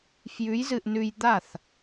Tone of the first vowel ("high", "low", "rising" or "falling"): rising